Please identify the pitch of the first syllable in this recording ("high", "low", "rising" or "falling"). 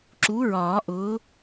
rising